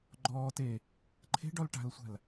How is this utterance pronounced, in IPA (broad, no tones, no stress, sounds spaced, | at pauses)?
ɡ͡ǃ ɔː t e | ǃʰ e̤ ɖ ɔ l ʈ a̤ l sʷ a̤ l